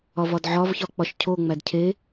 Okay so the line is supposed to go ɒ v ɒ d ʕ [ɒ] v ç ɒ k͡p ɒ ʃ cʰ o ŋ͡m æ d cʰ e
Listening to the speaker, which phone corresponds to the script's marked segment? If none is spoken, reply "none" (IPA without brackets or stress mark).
ɒ